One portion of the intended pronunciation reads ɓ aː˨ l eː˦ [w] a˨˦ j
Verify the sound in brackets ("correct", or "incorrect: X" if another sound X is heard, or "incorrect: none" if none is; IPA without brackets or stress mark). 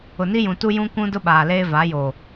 incorrect: v